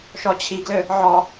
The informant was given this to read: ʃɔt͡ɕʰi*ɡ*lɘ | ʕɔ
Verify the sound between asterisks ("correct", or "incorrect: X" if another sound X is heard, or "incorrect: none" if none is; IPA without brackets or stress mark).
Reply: correct